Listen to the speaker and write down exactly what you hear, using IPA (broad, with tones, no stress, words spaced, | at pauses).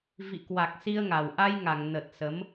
vḭ˧˨kwa˨˩k̚ si˧ə̯ŋa˨˩w ʔa˧jŋa˧˩ŋ nə˨˩t̚sə˨˦m